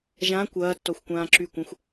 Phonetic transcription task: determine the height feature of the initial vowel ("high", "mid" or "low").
low